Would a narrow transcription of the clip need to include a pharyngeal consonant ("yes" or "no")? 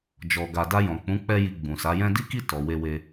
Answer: no